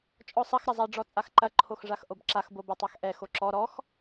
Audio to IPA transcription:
t͡ʃʼ ɔ sˤ ɐ x ɾ ɐ zˤ a ɖ͡ʐ ɔ t͡sʼ a x ǃ ɐ ǃʰ o x ʐ a x ʔ o b ǁ a x b o b ɐ tˤ a x ʔ ɛ x o ǁ ɔ ɾ ɔ x

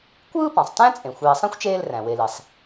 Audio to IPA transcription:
kʷ ɯː˥ p ɑ̃˩ sˤ t æ̃˥ t͡sʼ ẽ˩ xʷ eː˨ sˤ ẽ˥ xʷ t͡ʃ eː˦ l r æ̃˩ w e˨ l i˩ sˤ

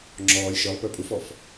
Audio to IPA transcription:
ŋ͡ǁ ɔː lʲ ʃ ə˞ lˠ p ə˞ pʼ u f ɔ f

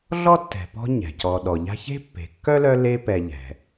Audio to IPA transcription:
ɮ ɔ˥ tː ɛ̤˨ p ɔ̤˦ ɲ ɛ̤˩ c ɔ˨ ɗ ɔ˩ ʎ a̤˦ ç e̤˥ pː e̤˨ kː œ˥ l œ˦ l e˦ p ɛ˨ ʎ ɛ̤˩

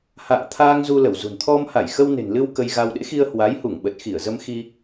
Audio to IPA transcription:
h a̰ː˧˨ t̪ʰ aː˧ ŋ z u˧ l ə˧˩ w z ṳ˨˩ n t̪ʰ ɔ˧ m h a˧˩ j x ə˧ w n e̤˨˩ n l ɨ˧ w k ə˧ j ɣ a˧ w ɗ ḛ˧˥ x i˧ ə̯ h w a˨˦ j h u˧˩ ŋ ɓ ə˨˩ t̚ x i˧˩ ə̯ z ə˧ m x i˧

